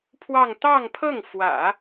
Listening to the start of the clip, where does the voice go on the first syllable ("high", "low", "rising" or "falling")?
falling